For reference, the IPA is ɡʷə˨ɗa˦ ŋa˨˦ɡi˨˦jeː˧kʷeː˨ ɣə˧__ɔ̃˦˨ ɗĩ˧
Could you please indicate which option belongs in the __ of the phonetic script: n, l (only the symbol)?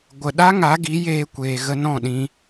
n